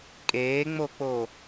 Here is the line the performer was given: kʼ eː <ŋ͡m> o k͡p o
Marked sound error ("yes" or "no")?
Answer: no